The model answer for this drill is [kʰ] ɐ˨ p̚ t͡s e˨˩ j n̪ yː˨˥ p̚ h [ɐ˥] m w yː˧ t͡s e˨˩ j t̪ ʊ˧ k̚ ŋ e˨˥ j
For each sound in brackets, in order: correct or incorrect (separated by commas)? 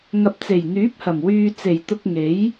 incorrect, incorrect